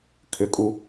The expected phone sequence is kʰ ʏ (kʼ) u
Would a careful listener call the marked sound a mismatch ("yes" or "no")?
no